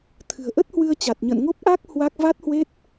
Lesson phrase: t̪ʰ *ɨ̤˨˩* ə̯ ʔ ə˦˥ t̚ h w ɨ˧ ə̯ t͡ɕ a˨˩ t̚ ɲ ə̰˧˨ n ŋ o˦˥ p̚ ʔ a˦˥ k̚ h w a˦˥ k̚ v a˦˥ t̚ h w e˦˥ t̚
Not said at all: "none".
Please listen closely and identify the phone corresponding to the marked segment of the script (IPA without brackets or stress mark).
ɨ̤˨˩